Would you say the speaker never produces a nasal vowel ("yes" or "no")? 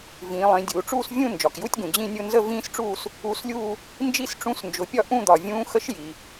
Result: no